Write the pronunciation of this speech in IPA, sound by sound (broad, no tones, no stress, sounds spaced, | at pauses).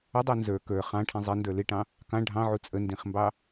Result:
ə dˤ u n z ə˞ k ə˞ χ ɑ̃ ʈʰ ĩ zˤ ɪ n d ə˞ l ɪ ʈ ɑ̃ | k ɑ̃ ɖʱ ɑ̃ ʕ u t͡sʼ ə n d ĩ χ m b ɑ